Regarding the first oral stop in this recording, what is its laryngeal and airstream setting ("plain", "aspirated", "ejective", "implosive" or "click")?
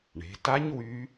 plain